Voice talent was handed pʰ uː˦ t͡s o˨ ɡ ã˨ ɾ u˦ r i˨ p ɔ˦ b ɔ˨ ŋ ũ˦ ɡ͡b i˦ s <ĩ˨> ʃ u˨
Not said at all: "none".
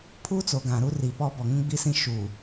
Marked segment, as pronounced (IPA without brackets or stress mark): ĩ˦